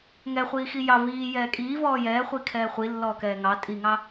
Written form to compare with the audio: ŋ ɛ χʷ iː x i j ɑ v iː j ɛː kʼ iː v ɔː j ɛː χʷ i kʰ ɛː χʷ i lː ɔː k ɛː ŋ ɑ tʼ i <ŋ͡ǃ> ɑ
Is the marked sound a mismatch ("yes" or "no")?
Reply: yes